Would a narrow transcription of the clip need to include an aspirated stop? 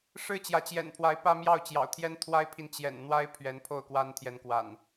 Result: yes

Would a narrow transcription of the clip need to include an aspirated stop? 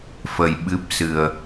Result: no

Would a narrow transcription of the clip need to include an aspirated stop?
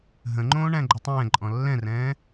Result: no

